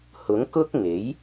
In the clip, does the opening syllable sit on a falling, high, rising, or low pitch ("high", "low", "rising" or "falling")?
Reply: rising